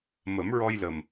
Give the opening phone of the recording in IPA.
m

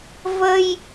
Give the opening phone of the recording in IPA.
v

